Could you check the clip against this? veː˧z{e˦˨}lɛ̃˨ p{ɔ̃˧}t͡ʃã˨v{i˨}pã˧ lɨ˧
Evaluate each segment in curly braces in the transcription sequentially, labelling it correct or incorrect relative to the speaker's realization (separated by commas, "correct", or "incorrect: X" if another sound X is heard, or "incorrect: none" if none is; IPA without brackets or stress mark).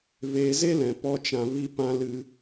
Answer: incorrect: e˦, incorrect: ɔ˧, incorrect: i˧